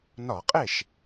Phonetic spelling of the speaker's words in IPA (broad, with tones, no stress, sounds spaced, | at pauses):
n ɒ˧˩˧ qʼ e˥˩ ʃ